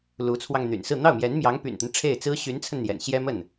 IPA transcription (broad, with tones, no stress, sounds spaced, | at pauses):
l u˧˥ t͡sʰ w ɑ˧ ŋ n̪ y̰˨˩ n s ɹ̩˥˧ n̪ ɑ˥˩ ʊ̯ m j ɛ˧˥ n m j ɑ˧˥ ŋ p y̰˨˩ n t̪ ə˦ n ʈ͡ʂʰ e˥˩ ɪ̯ t͡s ɹ̩˥ ɕ y˧˥ n t͡sʰ ə˧ n n̪ j ɛ̰˨˩ n ɕ j ɛ˥ m ə˥˩ n